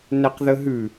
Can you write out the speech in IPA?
nɛqðəɦʉ

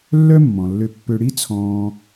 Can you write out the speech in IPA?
lːœ˥mːɔ̃˩lːø˧pːø˧ ɽi˥t͡sʰɔ̃ː˧

